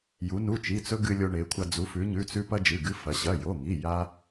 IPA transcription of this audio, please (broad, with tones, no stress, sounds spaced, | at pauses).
j u˩˧ n u˩˧˩ t͡ʃ i˩˧˩ t͡s ɵ˧ ɡ ɨ˧ lʲ o˧ ɳ e˩˧ kʷʰ a˧ d͡z u˩˧ f ʉ˩˧ ɲ ʉ˩˧˩ t͡s ʉ˧ p ɐ˧ d͡ʒ ɨ˩˧˩ ɡ ɨ˧ f ɐ˩˧ ɕ ɐ˩˧˩ j o˩˧˩ ŋ i˩˧˩ j a˧